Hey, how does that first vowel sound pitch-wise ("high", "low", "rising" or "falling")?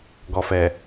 low